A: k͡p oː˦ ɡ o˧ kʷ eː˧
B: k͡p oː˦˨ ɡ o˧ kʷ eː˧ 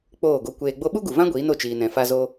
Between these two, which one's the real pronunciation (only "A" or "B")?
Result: B